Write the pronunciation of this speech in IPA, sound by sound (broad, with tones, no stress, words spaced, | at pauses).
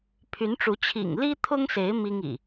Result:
pʰy˨˦nʈ͡ʂu˨˦ t͡ɕʰḭ˨˩ŋli˦t̪ʰʊ˦ŋse˨˦ɪ̯ mi˦ŋḭ˨˩